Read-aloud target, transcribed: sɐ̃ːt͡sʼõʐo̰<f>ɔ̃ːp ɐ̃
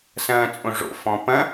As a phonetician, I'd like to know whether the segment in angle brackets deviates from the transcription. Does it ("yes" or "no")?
no